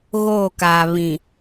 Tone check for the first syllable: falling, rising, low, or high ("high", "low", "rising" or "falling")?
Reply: falling